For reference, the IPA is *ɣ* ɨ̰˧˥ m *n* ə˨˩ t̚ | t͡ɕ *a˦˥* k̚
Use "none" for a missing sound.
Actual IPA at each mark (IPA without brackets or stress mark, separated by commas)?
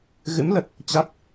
ɣ, l, a˦˥